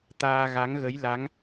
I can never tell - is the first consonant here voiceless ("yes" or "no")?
yes